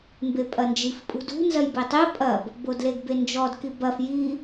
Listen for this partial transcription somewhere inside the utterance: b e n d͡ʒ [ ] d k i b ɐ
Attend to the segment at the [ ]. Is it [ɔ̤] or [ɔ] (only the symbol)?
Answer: ɔ